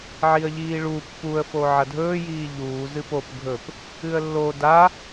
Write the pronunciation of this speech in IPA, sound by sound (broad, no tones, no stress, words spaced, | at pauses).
ʕiə̯ʎiːɭu pːuə̯ foʕɐdʱɵː jiːʎuː zɨpop ɡʱɵp | ɨə̯lːo da